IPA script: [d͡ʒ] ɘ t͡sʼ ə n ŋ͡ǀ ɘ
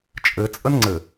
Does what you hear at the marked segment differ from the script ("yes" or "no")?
yes